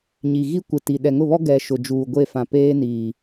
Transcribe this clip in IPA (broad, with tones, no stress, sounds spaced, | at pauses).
ɲ i˨ ɣ i˦ kʷ ɪ˨ t i˨ ɗ ɛ˨ ŋ ʊ˦˨ β ɔ˦ ɡ ɛ˨ ʃ ʊ˨ d͡ʒ uː˨ ɡʷ e˦˨ f ã˨ p eː˦ n iː˨